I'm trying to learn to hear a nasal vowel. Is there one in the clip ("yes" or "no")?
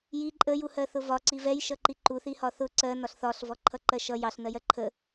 no